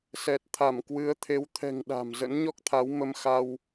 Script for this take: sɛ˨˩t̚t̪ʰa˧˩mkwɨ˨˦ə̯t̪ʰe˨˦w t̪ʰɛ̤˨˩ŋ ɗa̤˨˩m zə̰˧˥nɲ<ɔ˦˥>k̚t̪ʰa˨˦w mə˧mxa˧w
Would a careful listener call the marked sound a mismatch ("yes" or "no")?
no